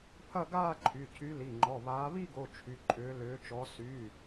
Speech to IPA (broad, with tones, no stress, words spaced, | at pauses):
pʰɐ˥˧ɡaː˥˧ǃʰy˩˧˩ cʰy˨˦li˩˧˩ŋ͡ǃɔ˩˧˩βaː˨˦ βi˥˧ɡo˩˧˩ t͡ʃʰy˩˧˩ǃʼʏː˨˦ lʏː˨˦t͡ʃɔ˨˦ sy˩˧˩